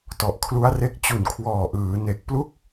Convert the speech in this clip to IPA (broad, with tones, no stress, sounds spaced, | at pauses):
t ɔ˨˩ ʔ kʰ l u˦˥ a̯ r e˦˥ k̚ t͡ɕ u˨˩ n kʰ w ɔː˨˩ ʔ ɯː˩˦ n e˨˩ k̚ p l u˥˩ k̚